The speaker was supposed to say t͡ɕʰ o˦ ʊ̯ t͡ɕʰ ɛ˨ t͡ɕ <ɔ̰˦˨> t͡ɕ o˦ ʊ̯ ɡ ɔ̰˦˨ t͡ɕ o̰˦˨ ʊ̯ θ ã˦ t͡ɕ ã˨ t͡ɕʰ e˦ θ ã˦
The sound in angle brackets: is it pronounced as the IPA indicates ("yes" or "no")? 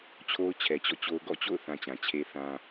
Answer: yes